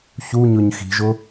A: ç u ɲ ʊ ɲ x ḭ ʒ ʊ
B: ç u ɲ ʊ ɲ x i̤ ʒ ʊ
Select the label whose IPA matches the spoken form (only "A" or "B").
B